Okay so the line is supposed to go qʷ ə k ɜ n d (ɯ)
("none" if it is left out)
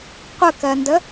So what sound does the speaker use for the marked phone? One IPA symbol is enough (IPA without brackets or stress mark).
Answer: ə